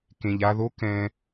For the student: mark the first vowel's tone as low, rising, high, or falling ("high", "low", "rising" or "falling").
low